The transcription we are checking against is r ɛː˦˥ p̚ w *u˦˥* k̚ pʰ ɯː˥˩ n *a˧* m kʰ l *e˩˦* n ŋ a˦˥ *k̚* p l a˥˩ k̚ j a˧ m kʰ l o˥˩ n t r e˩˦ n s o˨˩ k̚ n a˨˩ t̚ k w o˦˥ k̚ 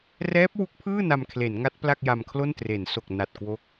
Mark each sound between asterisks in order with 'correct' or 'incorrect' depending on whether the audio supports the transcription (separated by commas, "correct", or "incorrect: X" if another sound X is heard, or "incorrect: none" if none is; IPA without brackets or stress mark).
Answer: correct, correct, correct, incorrect: t̚